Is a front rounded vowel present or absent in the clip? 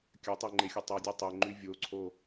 present